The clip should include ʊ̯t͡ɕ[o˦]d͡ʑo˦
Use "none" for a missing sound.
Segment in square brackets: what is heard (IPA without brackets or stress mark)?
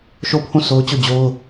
o˦˨